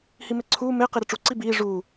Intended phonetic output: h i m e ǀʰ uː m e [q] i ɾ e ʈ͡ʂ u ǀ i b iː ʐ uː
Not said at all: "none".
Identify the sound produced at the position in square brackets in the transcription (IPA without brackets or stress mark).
q